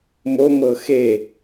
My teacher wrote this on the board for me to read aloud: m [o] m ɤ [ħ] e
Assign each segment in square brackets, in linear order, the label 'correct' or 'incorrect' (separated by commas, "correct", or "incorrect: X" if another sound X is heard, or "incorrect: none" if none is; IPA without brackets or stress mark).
correct, incorrect: x